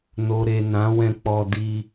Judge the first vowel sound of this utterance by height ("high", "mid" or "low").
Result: mid